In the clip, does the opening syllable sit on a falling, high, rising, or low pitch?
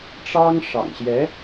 high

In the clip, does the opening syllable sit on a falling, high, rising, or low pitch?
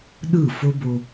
falling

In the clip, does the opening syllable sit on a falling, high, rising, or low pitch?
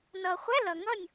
low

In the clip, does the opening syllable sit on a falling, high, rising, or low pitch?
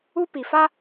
high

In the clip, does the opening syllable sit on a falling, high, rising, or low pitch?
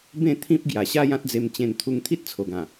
falling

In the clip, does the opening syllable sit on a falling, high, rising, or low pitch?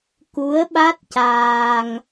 rising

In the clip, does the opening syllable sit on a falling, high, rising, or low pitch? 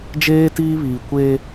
high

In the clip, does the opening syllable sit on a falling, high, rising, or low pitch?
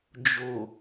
low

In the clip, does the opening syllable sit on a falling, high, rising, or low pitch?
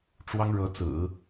high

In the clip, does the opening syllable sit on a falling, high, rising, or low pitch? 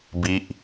falling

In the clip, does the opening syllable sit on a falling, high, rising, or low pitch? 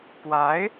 rising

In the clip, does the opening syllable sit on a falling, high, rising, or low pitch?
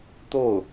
falling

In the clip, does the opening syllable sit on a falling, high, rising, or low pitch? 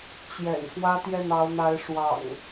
low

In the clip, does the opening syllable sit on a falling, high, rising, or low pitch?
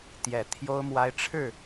low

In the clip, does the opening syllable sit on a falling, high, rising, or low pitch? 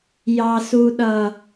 low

